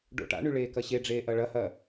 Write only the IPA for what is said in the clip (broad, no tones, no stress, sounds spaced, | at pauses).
ɖ o̰ ʈ a̰ ɳ y ɭ eː k ɐ ɕ e ɖ͡ʐ eː ʔ ɐ ɭ ɐ h ɐ